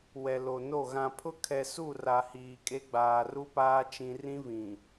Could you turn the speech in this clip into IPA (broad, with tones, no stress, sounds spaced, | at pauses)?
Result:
w ɛ˨ l o˨ n o˦˨ ɣ ã˨ pʰ ʊ˦ kʰ ɛ˨ s u˦˨ r a˨ h iː˨ kʼ e˦ ɡ͡b aː˨ r u˦ p aː˦ t͡ʃ ĩ˦ r ĩ˦ v ĩ˨